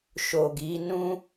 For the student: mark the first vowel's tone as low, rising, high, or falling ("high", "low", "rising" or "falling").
low